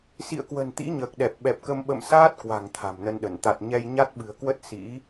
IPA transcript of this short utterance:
s ḭ˧˨ ə̯ k w ə̤˨˩ n t̪ ḭ˧˥ ɲ əː˨˩ k̚ ɗ ɛ˨˩ p̚ ɓ ɛ˨˩ p̚ k ə˧ m ɓ ə̰˧˨ m s aː˦˥ t̚ k w a̤˨˩ ŋ t̪ʰ a̤˨˩ m n ə˧ n ɗ ə˧˩ n t̪ a˨˩ t̚ ɲ ɛ˧ j ɲ a˦˥ t̚ ɓ ɨ̤˨˩ ə̯ k w ə˦˥ t̚ s ḭ˧˥

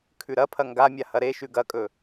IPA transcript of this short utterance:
kʰ ʉ ɾ ɐ pʰ ɐ ŋ ɡ a mʲ a h ɐ ɾ e ʃ ʉ ɡ ɐ kʼ ɵ

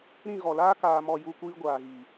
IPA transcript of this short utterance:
ɾ ĩ˦˨ ɣ ɔ˨ l aː˦ k aː˧ m ɔ˧ j u˧ kʷ iː˧ ɡʷ aː˨ ɣ i˨

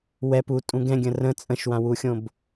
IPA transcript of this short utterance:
w ɛ p u tʼ ũ ɡ ɛ̃ ɡʲ ə̃ r ə̃ t͡sʼ ə̃ ʃ w ã w u xʲ õ b

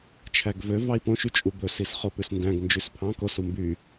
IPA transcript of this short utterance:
t͡ʃʰ æ ɡ v ø v ɑ i̯ p õ ʃ y t͡ʃʼ u b ɵ s i s χ o p ʉ s n d æ̃ ɡ n d͡ʒ ʉ s pʰ ɑ̃ k o s u m b y

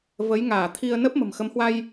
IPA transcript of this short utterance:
v ə˨˦ j ŋ aː˧˩ t̪ʰ i˧ ə̯ n əː˦˥ p̚ m ə̤˨˩ m x ə˨˦ m h w a˧ j

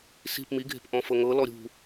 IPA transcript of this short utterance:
s i̤ p m i ɡʱ e̤ p ʔ ɔ̃ f ɤ ŋ ɤ l ɔ ɾʲ ṳ

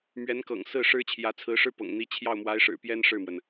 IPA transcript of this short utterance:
m ɥ ɛ˧˥ n k ɤ̰˨˩ ŋ s ɹ̩˥˩ ʂ ɻ̩˥ t͡ɕʰ j ä˧˥ t͡sʰ ɹ̩˧˥ ʂ ɻ̩˥ p ɤ̰˨˩ ŋ n̪ i˧˥ t͡ɕʰ j ɑ˥˩ ʊ̯ m w a˧˥ ɪ̯ ʂ ɻ̩˨˩ p j ɛ˥ n ʂ ɻ̩˥˩ m w ə˩ n

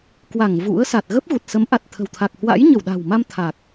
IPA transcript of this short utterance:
k w a˧˩ ŋ v ṵ˧˥ ə̯ s a˨˩ t̚ ɣ ə˦˥ p̚ ɣ u˨˩ t̚ s ə˨˦ m ʔ a˨˩ t̚ t̪ʰ ə̤˨˩ w t̪ʰ a˨˩ k̚ h w a̰˧˥ j ɲ ə˧˩ w ɗ a̤˨˩ w m a˧ m t̪ʰ a˨˩ k̚

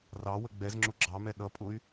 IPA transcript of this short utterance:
r ɑ w ə ɡ͡b ɛ z ŋ͡ǁ ʊ ɡ͡ǁ ɑ m ɛ ɗ ʌ pʼ ʊ y̯

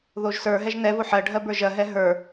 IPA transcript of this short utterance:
ð o ʒ s ə˞ ɦ ɛ ʒ n ɛ v o ħ ɜ ɖʱ ɜ b ə˞ ʒ ɜ ɦ ɛ ɦ ə˞

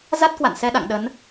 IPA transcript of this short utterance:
z a˦˥ t̚ k w a̰˧˨ n s ɛ˧ ɗ a̰˧˨ ŋ ɗ ə˨˦ n

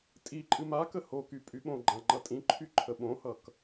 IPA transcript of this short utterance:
tʼ i ǃʼ ɨ m a k ə h o k y pʼ y ɓ õ ɡ͡ǃ ã ŋ͡ǃ ʌ tʼ ĩ ǃʰ y ǃʰ ə ɓ õ h ʌ k

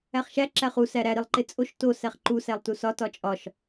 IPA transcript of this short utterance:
æ χ ʃ æ ǁ æ χ u s æ ɾ æ ɾ i lˠ ǃ e t͡sʼ o ʃ t o s æ χ ǃ u s æ lˠ t u s ɒ t ɒ t͡ʃʼ ɒ ʃ

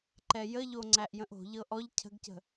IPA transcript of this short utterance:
ǃ ɛ j ə ʎ o ŋ͡ǀ æ ʔ j ə̃ ʔ o̤ ʎ ɤ ʔ ɔ ʎ cʰ ə̤ ɡ c ə̤

